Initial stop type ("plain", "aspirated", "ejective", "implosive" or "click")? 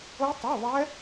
plain